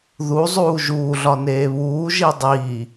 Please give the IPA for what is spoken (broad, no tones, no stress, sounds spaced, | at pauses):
ð u zˤ uː ʒ uː ɮ ɒ n eː β uː ʒ i dˤ iː